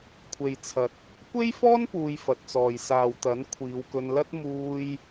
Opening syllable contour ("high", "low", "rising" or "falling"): low